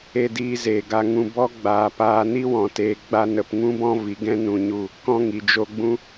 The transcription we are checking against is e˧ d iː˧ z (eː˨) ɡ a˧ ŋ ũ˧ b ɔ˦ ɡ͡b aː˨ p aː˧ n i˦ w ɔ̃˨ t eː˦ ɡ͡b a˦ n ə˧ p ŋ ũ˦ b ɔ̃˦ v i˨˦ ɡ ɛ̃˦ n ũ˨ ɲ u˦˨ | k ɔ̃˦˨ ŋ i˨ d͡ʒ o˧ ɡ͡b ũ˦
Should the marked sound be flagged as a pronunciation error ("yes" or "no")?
no